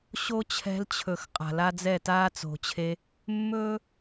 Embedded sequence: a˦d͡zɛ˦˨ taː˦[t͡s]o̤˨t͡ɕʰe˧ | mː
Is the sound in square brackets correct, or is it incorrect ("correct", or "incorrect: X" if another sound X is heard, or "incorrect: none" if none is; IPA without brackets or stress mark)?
correct